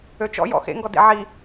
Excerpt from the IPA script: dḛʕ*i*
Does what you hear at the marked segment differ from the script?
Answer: no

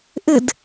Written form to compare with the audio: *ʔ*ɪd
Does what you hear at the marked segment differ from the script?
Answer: no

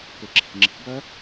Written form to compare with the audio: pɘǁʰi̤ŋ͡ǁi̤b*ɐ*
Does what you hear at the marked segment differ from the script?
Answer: no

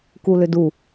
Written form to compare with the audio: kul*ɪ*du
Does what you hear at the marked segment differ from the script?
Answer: yes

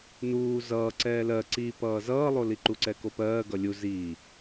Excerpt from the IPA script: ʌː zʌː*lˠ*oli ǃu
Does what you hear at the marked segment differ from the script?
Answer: no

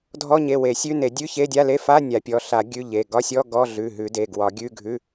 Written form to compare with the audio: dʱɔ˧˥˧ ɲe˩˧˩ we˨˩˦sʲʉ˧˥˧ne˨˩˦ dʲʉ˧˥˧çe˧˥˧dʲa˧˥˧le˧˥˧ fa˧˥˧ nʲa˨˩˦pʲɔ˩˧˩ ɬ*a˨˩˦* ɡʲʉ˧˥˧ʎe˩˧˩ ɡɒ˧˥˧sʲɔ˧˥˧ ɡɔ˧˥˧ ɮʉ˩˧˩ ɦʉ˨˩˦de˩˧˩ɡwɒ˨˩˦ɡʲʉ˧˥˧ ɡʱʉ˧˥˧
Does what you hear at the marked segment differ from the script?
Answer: no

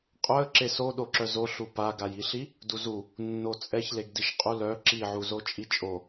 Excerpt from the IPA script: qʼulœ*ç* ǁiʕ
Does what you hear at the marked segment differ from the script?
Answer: yes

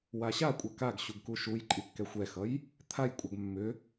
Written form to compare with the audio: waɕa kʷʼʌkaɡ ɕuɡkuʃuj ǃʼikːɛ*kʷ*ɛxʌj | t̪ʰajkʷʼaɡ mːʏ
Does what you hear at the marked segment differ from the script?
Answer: yes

